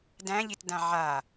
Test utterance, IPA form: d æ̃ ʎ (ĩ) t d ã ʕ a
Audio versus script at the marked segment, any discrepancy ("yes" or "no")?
yes